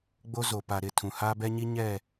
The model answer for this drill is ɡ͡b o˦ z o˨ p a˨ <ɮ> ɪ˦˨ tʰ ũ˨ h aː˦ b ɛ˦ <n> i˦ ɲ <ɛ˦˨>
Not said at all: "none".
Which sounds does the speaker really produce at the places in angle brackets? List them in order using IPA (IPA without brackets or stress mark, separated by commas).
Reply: ɾ, ɲ, ɛ˦˨